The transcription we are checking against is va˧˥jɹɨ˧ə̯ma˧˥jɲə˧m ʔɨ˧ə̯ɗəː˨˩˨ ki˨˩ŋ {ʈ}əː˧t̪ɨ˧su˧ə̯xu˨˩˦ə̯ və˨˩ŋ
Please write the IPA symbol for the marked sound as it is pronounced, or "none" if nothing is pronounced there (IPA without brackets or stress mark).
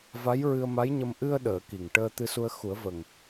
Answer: ʈ